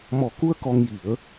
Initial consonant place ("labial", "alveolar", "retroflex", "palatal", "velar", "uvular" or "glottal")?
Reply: labial